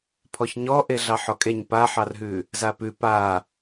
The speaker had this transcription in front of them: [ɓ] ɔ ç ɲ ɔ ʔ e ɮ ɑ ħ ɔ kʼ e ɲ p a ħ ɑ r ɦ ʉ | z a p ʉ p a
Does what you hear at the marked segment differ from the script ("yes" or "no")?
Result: yes